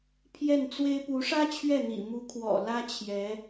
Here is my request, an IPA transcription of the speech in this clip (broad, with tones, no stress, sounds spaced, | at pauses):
pʰ j ɛ˥˩ n t͡s w e˥ ɪ̯ p u˧˥ ʂ ä˥ t͡ɕʰ ɥ ɛ˥˩ n̪ ḭ˨˩ m u˧˥ kʰ w ɔ̰˨˩ l ä˥ t͡ɕʰ j ɛ˧˥